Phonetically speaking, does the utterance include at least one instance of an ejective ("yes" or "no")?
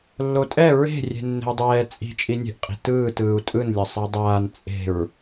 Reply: yes